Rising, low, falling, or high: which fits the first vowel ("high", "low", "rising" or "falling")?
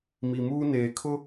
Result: low